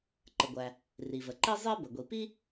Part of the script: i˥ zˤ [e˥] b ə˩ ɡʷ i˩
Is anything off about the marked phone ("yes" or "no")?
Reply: no